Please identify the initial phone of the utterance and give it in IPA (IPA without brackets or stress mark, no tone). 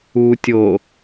u